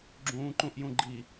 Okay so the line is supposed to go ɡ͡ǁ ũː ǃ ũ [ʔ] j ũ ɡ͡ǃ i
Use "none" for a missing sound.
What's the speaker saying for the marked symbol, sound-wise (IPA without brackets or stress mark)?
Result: ʔ